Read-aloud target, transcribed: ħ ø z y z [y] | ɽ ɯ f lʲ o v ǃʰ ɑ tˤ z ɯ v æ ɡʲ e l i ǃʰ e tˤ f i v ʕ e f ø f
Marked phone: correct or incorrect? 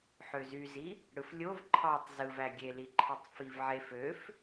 incorrect